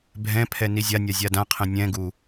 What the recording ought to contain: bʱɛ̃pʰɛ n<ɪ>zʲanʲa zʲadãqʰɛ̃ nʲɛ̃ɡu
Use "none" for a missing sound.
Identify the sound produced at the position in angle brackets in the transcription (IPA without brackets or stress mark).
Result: i